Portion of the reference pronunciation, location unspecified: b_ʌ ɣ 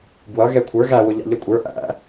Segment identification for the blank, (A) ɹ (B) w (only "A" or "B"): B